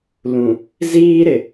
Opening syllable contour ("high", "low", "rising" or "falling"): low